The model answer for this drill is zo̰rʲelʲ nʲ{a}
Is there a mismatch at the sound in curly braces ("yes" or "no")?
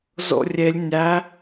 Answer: yes